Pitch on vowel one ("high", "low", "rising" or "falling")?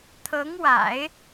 rising